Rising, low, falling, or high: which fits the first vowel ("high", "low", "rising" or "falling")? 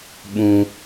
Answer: high